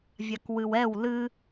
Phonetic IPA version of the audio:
vʲakwɨwɛw lɨ

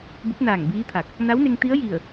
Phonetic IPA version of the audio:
bu˧˥p̚naː˧˩ŋbiː˧˥t̪ʰa˧˩k̚ | na˧˥wne˧ŋ t̪i˧˥ə̯ji˧˩ə̯

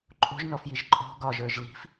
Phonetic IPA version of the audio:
ǃʼo̤ʒnɔfjiʒ ǃʼɔ̤ ɡɒʒə˞ʒ li̤f

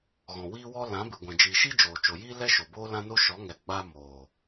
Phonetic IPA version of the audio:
ɣɔ̃˨wiː˦wɔ˦ lã˨˦ bɨ˨ɡʷɛ̃˨d͡ʒiː˨ʃi˦ d͡ʒoː˨t͡ʃo˨jiː˦ lɛ˦ʃo˨ boː˦lã˦no˦ ʃɔ˨˦ŋɛ˨ ɡ͡ba˧ moː˨

